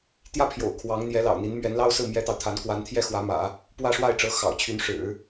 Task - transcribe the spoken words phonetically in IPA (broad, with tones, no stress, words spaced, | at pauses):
t̪jä˥pʰjo̰˨˩ʊ̯ kʰwɑ˧˥ŋ n̪jɛ˧˥lɑ̰˨˩ʊ̯n̪i˧˥n mɥɛ˧˥nlɑ˥ʊ̯sɹ̩˥˩ mjɛ˥t̪ɑ˨ʊ̯t̪ʰa˧˥n kwa˧˥nt̪ʰjɛ˥˩ xwä˧˥mä̰˨˩˦ | pwä˥˧ʂwa˥˩ɪ̯ʈ͡ʂɤ˧˥ xɑ̰˨˩ʊ̯t͡ɕʰy˧˥n ʂɻ̩˨˩˦